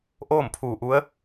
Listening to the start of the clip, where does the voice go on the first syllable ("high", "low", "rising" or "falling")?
falling